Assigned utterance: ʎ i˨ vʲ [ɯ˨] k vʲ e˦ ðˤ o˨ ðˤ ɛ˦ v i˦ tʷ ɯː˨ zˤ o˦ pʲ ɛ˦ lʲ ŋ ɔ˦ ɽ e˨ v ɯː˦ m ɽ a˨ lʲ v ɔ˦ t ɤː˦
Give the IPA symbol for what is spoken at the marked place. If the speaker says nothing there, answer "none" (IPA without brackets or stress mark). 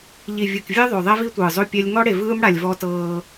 ɯ˨